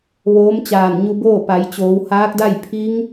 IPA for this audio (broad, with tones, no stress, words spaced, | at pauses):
ʋoː˧˥mt͡ɕaː˧˩nɲu˧boː˥˨ pa˩˧jt͡ɕoː˩˧w haː˧˥k̚da˥˨j pʰi˧˥ŋ